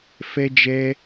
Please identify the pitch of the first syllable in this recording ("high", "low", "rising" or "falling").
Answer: high